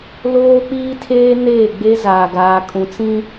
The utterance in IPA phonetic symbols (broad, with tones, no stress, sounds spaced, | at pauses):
l oː˦ k͡p iː˦ tʰ eː˦ n eː˦˨ ɡ͡b e˦ z aː˨ ɡ aː˨ kʼ ũ˨ t͡s ĩ˦